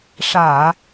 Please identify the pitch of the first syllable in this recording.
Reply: low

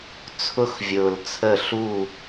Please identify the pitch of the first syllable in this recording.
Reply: high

